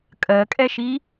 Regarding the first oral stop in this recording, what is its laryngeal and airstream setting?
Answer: ejective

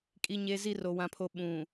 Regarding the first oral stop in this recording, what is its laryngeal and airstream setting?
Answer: ejective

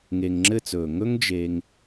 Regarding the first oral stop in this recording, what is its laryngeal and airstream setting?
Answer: click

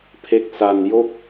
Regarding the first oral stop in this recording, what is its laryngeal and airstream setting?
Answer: aspirated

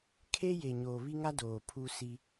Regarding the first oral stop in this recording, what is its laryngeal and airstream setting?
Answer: aspirated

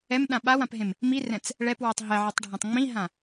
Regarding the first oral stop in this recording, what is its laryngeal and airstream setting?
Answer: implosive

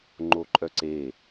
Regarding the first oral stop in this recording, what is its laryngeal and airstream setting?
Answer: click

